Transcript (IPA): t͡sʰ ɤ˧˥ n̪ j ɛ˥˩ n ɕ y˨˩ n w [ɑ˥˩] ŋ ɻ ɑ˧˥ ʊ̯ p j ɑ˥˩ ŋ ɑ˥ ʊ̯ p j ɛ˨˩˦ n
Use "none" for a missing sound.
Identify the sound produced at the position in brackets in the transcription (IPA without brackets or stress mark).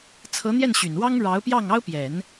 ɑ˥